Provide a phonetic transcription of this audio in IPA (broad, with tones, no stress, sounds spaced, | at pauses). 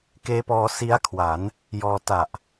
k eː˦˥ p ɔː˧ s i˦˥ a̯ kʰ w a˩˦ n | j ɔː˧ t a˨˩ ʔ